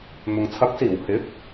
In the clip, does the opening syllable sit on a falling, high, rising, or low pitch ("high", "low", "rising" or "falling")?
low